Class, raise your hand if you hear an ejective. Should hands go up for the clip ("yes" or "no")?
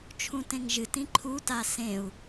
no